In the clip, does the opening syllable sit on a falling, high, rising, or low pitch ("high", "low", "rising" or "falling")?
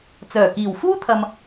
low